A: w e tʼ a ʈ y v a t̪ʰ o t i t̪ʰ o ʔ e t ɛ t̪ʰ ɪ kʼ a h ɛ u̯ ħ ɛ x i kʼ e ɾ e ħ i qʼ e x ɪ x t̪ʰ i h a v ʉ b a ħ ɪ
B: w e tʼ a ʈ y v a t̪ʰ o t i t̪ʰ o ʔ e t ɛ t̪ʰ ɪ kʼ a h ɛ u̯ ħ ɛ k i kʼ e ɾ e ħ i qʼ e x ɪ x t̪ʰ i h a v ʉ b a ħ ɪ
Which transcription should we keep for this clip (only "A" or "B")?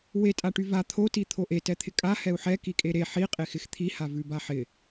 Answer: B